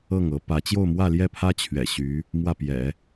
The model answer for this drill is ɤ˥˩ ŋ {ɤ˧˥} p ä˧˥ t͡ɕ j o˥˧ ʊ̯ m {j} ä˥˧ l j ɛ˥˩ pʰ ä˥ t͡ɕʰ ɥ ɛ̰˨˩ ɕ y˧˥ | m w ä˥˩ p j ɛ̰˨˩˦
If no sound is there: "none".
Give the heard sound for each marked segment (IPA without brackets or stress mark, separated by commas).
ɤ˧˥, w